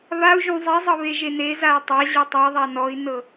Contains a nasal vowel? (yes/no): yes